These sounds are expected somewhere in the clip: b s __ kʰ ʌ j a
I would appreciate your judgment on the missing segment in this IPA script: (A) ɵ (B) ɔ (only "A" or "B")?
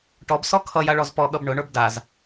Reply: B